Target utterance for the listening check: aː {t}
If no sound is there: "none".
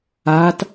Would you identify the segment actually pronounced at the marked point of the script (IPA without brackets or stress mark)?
t